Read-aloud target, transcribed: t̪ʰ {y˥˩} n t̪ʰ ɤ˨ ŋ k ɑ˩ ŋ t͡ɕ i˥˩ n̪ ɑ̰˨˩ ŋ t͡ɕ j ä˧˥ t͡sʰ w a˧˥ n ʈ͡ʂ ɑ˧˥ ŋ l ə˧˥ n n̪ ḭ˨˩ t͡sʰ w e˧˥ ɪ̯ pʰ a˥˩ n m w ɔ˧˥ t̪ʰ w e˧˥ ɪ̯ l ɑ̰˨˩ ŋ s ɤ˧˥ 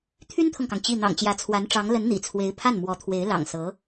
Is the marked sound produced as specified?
no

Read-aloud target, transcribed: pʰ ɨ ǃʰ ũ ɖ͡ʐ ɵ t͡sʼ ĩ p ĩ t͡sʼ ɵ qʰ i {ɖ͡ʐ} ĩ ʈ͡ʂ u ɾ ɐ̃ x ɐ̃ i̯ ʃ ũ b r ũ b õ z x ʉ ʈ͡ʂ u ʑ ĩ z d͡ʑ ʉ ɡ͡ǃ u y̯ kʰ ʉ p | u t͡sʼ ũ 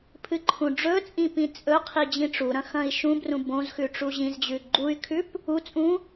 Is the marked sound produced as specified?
no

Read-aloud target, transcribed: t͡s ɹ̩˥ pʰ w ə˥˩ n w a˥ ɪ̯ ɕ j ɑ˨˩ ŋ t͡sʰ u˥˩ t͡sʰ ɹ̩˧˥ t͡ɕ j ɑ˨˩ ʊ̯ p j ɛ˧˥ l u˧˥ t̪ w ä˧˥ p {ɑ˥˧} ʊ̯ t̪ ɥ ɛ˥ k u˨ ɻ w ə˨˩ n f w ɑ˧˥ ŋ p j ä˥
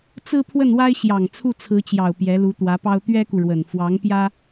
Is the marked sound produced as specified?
no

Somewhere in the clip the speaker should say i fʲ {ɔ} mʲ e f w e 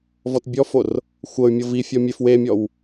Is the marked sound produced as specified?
yes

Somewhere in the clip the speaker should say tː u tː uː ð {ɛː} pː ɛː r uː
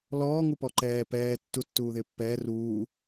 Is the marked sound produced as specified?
no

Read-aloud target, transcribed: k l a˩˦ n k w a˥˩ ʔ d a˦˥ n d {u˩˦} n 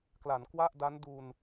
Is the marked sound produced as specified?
no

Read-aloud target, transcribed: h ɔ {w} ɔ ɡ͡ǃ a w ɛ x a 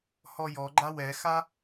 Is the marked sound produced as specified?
no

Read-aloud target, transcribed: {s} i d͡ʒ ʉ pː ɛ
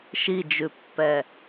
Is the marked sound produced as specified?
no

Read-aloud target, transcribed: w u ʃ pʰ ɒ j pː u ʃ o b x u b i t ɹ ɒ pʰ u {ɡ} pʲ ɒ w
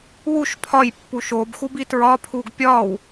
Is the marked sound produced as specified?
yes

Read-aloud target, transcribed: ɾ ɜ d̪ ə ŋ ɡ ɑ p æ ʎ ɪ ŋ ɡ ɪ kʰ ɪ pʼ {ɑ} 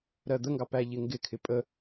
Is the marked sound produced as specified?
no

